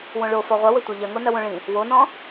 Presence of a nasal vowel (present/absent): present